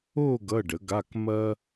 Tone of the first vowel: falling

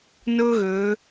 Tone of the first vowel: high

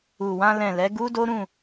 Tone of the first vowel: low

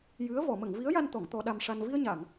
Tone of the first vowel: rising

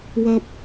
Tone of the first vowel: high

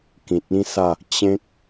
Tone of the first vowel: low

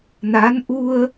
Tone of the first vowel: rising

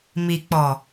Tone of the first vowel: low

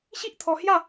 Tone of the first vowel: high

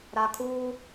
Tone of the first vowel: high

